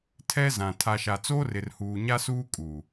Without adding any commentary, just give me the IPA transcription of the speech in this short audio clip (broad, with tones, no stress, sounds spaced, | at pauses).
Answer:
tʰ ɛ˦ z ã˨ tʰ a˨ ʃ a˨ t͡s oː˦ r ɪ˨ r h uː˨ ɲ a˦ s uː˦ kʼ uː˨